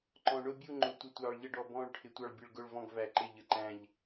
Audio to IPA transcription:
ǃ ɔ̃˩ ɳ ʊ˦˨ bʲ u˦˨ ŋ͡ǃ ʊ˩ tʷ ə˩ tʷ ɑː˩ ɭ ʎ ə˦˨ ɖ ɔ˩ b ɔ̃ː˦˨ ɭ ʈʰ ɪ˩ tʷ ɑ˦˨ ɭ bʲ ə˦˨ ɭ ɡ ʊ˦˨ ɭ v ɔ̃˦˨ ɡ v æ˩ ǃ ɪ˦˨ ʎ ə˩ ǃ æ̃˦˨ ʎ

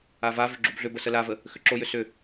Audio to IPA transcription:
a v a v ʏ ɡ͡ǁ u b ɮ ʏ b ə s ə l a v ə | x ʏ ǁ o j ʏ s ʏ

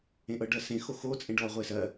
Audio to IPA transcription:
ẽ ʔ ɤ ɖ ɜ s ẽ x o x o t͡sʼ ẽ ɖ ɔ ʁʷ e s ɜ

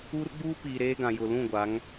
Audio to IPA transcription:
uː˦ r ɡ͡b uː˦ p iː˨ ɾ eː˦ ɡ ã˨ j ʊ˨ l ũ˦˨ ɡʷ a˨˦ ŋ

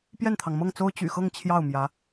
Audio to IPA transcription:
p j ɛ˥˩ n t̪ʰ ɑ˩ ŋ m ɤ˥˩ ŋ t͡s o˥ ʊ̯ t͡ɕ y̰˨˩ x ɤ˥˧ ŋ t͡ɕʰ j ɑ˥˩ ʊ̯ m j ä˧˥

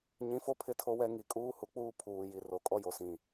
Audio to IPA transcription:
ɲ ĩ˨˦ f o˦ pʰ ɪ˦ tʰ o˦ w ɛ˦ ŋ i˨ kʼ uː˦ h u˨ k͡p uː˦ pʰ uː˨ j i˨ r o˨ kʼ ɔ˦ j o˨ s ĩ˨

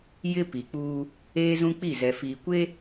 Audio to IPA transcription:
j ɪ˦ p i˨ k͡p uː˦ | eː˦ z ũ˦ k͡p i˦˨ z ɛ˨ f iː˨ kʷ e˦

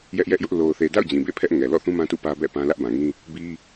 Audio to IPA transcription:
j ɛ˦ ʔ j ɛ˦ ʔ j ʊ˦ ʔ l o˨ ʊ̯ θ e˨ d a̰˦˨ ʊ̯ d͡ʑ ĩ˨ b ḛ˦˨ pʰ ɛ˦ ʔ ŋ ɛ˨ l ɔ̰˦˨ θ ũ˦ m ã˦ t ṵ˦˨ p ä˦ b ɛ̰˦˨ p ã˦ l ä˦ ʔ b ã˨ ŋ ĩ˦ | b i˦

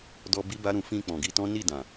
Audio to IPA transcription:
d ɔ˧ b i˦ b a˦ ɾ ũ˧ f ĩ˧ k͡p ɔ̃˨ ɡ i˧ t ɔ̃˦ n i˦˨ d ã˨

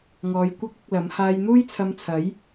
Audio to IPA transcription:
ŋ ɔː˨˧ j kʷ ɐ˥ k̚ ʊ˧ k̚ l ɐ˨˥ m h aː˧ j n̪ uː˥ j t͡sʰ ɐ˧ m t͡sʰ ɐ˨˥ j

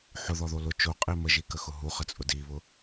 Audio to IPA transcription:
ħ ʊ ð ɔ ð o l ʊ t͡ʃ o qʼ i m ə ʒ i k ə x ʊ ɦ u χ ə t͡sʼ ʊ d i β ʊ

